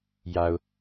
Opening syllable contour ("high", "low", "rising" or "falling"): low